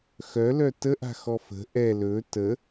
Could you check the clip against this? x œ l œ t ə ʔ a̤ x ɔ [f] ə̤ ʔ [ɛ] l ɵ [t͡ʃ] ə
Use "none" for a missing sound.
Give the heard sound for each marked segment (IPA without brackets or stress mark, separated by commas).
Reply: f, ɛ, t